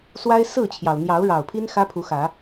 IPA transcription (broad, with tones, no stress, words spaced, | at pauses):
swa˦ɪ̯ sɹ̩˥˨t͡ɕʰjɑ˩ʊ̯ n̪jɑ˨˦ʊ̯ɻɑ˨˩ʊ̯pʰi˦n xä˦pʰu˨˦xä˨˦